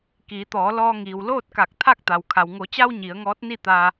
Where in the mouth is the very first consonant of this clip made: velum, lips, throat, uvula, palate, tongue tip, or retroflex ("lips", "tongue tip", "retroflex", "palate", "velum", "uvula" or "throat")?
velum